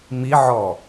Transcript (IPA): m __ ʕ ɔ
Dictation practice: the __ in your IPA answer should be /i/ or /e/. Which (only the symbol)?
i